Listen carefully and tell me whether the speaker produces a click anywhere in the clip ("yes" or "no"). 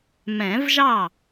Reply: no